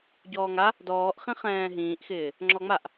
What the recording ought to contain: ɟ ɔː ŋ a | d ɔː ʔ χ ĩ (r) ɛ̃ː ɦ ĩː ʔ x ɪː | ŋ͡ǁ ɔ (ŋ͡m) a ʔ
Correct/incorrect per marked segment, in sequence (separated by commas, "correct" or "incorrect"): incorrect, correct